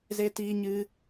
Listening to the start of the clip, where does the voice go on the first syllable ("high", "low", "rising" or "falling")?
high